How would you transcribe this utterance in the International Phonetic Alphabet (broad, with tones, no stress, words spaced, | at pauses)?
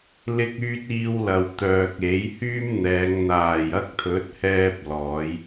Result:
lɪ˧k̚yː˧t̚ iː˧wlɐ˨wt̪œː˨k̚ e˨˥jhyː˥mn̪ɛː˨˧ŋ n̪aː˨˩jɐ˧k̚ t̪ʰɵ˨˥t̚hɛː˧p̚ lɔː˨˧j